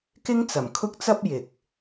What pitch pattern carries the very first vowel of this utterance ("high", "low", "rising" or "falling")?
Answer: high